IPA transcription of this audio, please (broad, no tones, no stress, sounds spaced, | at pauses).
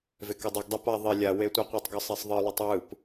v e k ʌ dˤ u ɡ dˤ o p a ðˤ e lʲ a w e tʷ ɯ qʷ ɯ tˤ ɡ ʌ sˤ ɛ sˤ ðˤ ɯ lˠ ɯ tˤ w ɯ p